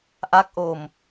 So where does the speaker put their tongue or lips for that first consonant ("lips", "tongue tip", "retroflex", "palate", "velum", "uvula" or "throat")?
throat